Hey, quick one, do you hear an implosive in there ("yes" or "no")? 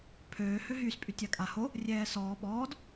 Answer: yes